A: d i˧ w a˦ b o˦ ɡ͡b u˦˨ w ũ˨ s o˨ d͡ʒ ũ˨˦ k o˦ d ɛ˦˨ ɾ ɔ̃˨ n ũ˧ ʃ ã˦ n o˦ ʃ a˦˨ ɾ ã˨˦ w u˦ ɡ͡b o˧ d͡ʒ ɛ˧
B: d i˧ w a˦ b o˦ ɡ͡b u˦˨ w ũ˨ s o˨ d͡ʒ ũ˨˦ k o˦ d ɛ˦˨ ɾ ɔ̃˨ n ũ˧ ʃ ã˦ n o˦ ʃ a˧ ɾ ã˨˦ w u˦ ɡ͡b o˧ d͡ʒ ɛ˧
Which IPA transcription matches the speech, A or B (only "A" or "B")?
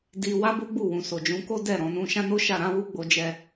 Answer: A